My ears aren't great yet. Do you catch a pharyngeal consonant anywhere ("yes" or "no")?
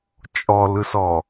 no